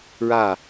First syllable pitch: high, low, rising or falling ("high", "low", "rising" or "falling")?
falling